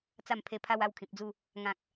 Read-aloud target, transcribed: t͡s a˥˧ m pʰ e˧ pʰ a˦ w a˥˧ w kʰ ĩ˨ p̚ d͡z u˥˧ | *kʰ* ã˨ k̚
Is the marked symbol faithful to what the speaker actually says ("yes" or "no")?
no